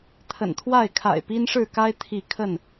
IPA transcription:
t̪ʰə̰˨˩nt̪ʰwa˥˨ɪ̯kʰa̰˨˩ɪ̯ pi˦nʂɻ̩˥˨ka˦ɪ̯ t̪ʰi˥˨ kʰə˥˨n

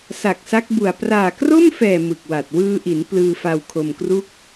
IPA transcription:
sa˨˩k̚sa˦˥k̚bu˨˩a̯ praː˨˩kro˥˩mfɛː˨˩ mɯ˨˩k̚wa˨˩t̚ wɯː˧ʔi˩˦n plɯː˧fa˧wkʰo˧mkru˥˩k̚

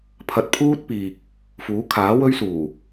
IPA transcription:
pʰɐ˧t̚pʰuː˥t̚piː˨k̚ | fuː˨˥kʰaː˨˥wɵ˥ɥsuː˨˩

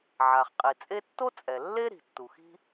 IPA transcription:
ʕa˩χqʼi˩t͡sʼe˥ tːo˥t͡sʼɛ˩ lːe˥ɾi̤˩ tːu˩xi̤˥

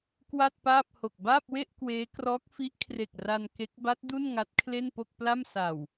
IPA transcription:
kwa˥˩t̚paː˥˩p̚ho˨˩k̚ baː˥˩p̚we˥˩ʔ kweː˦˥krɔː˦˥k̚fi˦˥ʔ kʰre˨˩k̚ra˧n ke˦˥k̚ ba˦˥t̚ du˥˩n ŋa˦˥t̚kʰle˥˩npo˥˩k̚pla˥˩m sa˨˩w

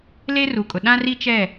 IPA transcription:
le˦ru˨kʼʊ˨ ɗã˦ri˦t͡ʃɛ˦˨

